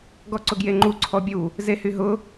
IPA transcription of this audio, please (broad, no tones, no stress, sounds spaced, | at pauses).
ɡ ɔ ǀ ʊ ɡ j e ŋ͡ǃ u ǀʰ ɔ bʲ u | z e h y ɦ ʊ